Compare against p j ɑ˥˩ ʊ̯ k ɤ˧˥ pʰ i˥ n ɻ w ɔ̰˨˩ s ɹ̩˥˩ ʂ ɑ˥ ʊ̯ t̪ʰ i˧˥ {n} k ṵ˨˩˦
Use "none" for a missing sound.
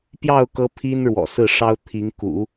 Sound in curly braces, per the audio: ŋ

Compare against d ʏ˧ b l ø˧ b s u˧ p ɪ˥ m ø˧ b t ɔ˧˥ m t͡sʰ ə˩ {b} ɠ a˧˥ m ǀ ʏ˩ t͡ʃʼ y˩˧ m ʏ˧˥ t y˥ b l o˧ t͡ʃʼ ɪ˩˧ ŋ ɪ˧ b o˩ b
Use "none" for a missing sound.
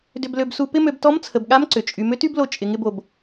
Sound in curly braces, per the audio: b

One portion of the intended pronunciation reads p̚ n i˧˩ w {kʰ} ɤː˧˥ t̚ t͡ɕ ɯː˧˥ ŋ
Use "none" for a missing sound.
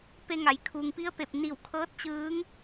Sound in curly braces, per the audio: kʰ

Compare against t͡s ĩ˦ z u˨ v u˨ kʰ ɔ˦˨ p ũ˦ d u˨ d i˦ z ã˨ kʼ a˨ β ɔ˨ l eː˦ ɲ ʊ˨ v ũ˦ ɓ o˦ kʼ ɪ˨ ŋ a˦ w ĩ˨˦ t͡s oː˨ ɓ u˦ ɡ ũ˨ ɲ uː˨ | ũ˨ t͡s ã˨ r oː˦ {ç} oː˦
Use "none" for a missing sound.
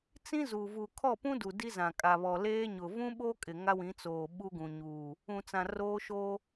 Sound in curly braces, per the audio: ʃ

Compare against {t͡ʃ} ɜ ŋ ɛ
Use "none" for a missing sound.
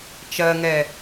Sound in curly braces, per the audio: t͡ʃ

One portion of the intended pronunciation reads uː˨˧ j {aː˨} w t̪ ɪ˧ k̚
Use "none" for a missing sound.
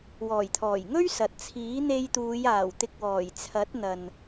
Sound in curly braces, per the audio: aː˨˩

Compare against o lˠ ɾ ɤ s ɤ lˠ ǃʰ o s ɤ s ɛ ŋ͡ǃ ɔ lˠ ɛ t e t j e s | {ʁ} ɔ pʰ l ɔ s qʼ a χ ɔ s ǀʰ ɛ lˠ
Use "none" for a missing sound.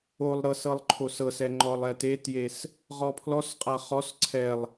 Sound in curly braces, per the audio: ʁ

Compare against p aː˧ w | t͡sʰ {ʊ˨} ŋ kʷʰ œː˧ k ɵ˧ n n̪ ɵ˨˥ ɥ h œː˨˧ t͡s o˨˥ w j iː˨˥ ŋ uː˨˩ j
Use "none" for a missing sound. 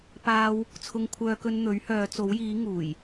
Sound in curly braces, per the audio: ʊ˧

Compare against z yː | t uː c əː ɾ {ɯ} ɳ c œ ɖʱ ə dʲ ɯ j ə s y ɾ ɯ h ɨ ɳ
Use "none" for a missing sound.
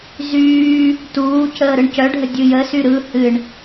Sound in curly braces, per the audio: ɯ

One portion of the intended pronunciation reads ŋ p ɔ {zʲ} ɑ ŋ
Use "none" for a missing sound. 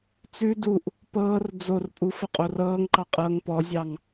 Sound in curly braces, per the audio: zʲ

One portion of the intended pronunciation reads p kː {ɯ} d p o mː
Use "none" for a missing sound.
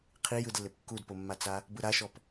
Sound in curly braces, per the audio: u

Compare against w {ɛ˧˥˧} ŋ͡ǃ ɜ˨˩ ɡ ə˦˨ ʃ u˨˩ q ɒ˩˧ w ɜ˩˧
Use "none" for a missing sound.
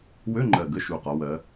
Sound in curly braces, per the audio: ø˧˥˧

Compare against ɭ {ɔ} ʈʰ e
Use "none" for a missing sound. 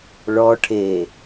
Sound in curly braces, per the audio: ɔ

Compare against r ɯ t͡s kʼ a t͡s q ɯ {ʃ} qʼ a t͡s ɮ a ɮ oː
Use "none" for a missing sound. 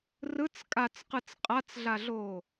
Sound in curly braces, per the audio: t͡s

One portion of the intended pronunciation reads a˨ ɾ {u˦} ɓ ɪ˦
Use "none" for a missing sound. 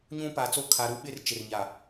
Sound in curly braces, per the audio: u˦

